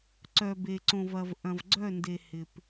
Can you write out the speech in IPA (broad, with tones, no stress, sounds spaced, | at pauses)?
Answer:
ǀ œ˨ b e˨ ǀ õ˨ v ɐ˨ v ʔ ɐ̃˨ v ɡ͡ǀ œ˦˨ n d e˨ h ɪ˨ p